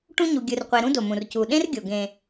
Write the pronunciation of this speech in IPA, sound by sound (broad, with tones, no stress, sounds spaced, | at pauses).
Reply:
ʈ ũ˦ ɲ u˨ ɡʲ ɯ˨ r qʷ e˨ ɾ ũ˦ d o˩ m ũ˩ r c u˩ ɗ ẽ˦ r ɡʲ o˩ ɡ ẽ˩